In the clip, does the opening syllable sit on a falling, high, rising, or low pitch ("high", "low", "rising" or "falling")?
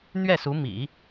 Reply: falling